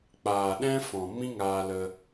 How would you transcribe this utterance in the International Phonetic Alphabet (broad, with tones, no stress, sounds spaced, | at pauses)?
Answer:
k͡p aː˨ ɗ ɛ̃˦ f ɔ̃˨ m ĩ˦ ŋ aː˧ l ə˧